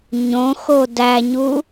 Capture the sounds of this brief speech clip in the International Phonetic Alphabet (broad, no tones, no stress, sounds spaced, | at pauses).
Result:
ɲ õ x o d æ ɲ u